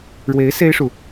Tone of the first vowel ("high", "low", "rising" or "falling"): rising